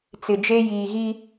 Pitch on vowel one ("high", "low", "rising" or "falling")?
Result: low